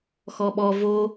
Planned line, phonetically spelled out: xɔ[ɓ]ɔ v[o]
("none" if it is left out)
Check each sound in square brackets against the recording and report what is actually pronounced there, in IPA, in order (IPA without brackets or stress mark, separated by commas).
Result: ɓ, o